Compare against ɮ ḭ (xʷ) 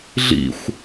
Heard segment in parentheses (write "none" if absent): xʷ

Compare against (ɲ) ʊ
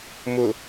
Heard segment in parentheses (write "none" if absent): m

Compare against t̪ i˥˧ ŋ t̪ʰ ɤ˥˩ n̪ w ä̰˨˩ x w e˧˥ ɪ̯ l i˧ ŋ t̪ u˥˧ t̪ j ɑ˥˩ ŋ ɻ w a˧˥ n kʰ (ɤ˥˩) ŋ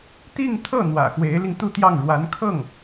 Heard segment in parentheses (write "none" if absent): ɤ˥˩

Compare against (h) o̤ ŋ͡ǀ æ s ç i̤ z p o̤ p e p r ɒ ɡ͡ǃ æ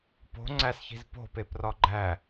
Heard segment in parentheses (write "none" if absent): p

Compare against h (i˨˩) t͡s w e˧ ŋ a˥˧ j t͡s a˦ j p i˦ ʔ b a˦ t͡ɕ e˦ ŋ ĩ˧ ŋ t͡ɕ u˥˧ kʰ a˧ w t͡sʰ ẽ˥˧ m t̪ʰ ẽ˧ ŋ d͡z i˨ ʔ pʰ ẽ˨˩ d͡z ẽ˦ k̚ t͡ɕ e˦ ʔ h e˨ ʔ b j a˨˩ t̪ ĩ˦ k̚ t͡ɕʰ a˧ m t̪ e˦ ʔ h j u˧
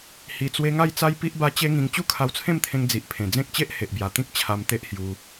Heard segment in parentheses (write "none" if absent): i˨˩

